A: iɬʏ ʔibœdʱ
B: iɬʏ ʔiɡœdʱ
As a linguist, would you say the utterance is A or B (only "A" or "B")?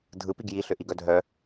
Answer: B